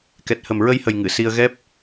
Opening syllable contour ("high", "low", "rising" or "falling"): low